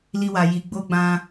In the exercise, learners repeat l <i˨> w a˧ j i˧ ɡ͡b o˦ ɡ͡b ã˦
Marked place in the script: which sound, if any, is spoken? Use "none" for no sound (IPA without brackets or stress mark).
i˦